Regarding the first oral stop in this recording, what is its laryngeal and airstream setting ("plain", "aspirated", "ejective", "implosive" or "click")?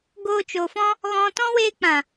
plain